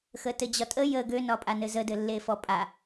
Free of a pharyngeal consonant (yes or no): yes